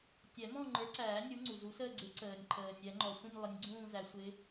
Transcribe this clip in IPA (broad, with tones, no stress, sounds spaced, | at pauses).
tʲ ɛ˨˩˦ m ɔ̃˥˧ ŋ͡ǃ ə˞˨˥ ǀ æː˨˩˦ nʲ u˨˥ ŋ͡ǀ u˩ z u˨˥ s əː˥˧ ɡ͡ǀ ɪ˨˥ ǀ əː˩ nʲ ǃʰ əː˩ nʲ ɛ˨˩˦ ŋ͡ǃ ɔ˩ sʷ ĩ˥˧ nʲ lˠ ɪ˨˥ nʲ ɡ͡ǀ ũː˥˧ z æ˨˩˦ sʷ ɪ˨˥